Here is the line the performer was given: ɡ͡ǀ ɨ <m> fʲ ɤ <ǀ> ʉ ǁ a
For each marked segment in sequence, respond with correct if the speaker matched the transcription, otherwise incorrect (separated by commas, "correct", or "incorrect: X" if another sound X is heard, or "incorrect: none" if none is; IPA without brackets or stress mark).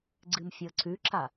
correct, correct